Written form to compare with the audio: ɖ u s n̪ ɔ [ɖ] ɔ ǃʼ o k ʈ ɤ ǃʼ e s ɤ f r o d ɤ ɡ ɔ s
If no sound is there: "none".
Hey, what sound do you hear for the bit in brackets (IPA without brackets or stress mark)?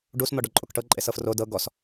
ɖ